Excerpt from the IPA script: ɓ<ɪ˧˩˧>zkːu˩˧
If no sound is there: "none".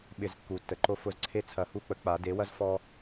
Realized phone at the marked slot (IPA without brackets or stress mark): ɪ˧˩˧